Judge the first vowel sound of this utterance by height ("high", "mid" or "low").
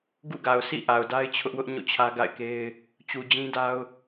high